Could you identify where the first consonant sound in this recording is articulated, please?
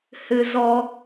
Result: glottal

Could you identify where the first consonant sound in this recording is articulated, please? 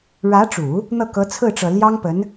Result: retroflex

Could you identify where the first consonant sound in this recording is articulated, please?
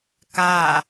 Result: velar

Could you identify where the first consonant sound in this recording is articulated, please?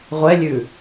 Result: uvular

